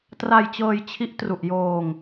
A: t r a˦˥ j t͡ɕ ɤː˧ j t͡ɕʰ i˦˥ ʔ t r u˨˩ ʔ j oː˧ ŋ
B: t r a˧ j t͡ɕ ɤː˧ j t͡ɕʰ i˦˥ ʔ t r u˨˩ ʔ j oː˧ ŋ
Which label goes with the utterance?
B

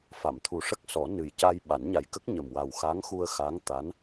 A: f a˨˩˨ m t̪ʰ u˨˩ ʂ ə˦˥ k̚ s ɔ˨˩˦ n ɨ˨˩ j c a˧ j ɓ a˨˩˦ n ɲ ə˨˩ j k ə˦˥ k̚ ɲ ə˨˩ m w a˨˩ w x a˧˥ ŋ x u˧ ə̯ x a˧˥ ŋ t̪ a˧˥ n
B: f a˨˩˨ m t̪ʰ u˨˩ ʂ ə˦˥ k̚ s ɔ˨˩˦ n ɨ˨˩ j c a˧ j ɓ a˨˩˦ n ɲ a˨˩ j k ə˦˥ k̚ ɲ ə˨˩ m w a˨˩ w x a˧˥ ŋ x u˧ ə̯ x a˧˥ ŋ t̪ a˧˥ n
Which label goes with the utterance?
B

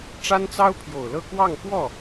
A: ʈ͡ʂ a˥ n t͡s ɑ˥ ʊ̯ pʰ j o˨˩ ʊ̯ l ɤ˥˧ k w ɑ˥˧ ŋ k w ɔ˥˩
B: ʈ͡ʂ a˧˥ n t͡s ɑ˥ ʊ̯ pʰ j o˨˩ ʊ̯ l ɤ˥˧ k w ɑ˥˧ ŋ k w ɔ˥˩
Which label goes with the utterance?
A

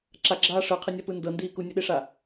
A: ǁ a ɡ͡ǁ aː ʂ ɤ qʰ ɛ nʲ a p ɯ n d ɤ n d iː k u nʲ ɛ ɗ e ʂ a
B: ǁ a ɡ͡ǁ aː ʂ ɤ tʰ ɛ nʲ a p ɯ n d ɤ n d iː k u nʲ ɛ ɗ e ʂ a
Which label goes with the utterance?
A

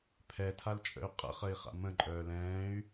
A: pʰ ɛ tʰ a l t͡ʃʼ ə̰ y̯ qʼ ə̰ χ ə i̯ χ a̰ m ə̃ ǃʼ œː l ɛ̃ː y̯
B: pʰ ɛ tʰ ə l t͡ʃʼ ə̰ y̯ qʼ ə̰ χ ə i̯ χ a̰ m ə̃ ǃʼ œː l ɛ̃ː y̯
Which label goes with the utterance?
A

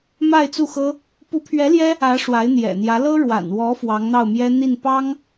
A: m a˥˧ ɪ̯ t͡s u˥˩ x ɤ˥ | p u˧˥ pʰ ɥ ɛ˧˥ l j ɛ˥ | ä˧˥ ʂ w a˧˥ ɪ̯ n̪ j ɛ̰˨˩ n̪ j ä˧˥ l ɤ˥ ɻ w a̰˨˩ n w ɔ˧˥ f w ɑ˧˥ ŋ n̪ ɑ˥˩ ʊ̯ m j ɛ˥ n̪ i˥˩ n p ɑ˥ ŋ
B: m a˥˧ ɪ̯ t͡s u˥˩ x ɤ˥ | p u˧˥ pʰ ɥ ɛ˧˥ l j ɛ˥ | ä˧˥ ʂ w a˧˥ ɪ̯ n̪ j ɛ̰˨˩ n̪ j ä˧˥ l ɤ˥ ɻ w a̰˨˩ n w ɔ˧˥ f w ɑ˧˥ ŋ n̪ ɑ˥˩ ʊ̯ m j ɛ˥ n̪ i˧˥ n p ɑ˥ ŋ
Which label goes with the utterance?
A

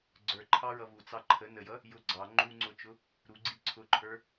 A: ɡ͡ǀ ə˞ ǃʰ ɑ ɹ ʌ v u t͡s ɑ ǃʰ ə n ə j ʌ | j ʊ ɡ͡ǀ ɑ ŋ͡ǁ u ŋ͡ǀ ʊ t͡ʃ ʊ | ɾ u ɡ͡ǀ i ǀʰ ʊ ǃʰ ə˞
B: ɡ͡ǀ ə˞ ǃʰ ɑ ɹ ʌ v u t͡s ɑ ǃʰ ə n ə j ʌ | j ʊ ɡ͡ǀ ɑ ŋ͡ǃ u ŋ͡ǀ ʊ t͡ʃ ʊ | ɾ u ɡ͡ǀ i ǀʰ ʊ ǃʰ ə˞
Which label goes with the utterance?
B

